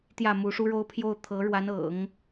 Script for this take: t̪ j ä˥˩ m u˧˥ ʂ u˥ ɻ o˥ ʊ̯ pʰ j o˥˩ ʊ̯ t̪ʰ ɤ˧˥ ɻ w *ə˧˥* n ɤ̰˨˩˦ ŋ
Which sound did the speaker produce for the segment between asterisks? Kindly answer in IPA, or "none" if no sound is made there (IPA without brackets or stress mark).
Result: a˧˥